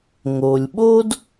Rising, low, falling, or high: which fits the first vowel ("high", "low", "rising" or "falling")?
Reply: low